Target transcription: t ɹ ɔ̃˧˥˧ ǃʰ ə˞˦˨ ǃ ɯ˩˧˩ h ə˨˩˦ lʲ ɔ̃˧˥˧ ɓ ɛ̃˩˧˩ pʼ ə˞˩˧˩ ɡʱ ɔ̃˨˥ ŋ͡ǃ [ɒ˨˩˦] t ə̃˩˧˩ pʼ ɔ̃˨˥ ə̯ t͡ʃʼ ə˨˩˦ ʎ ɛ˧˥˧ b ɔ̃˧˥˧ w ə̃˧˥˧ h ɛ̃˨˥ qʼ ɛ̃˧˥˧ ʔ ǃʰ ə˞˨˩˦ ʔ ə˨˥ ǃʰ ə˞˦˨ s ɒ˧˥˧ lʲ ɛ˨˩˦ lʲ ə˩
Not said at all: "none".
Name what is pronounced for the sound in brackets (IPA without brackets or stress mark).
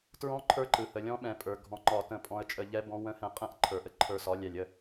ɒ˨˩˦